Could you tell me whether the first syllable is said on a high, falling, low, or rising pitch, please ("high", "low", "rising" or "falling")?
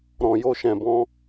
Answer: low